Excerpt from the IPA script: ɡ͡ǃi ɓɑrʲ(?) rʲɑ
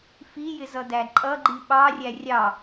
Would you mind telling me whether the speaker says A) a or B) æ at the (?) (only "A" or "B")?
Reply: B